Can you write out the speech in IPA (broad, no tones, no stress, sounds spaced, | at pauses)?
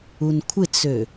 u n kʷʰ ɪ t͡s ø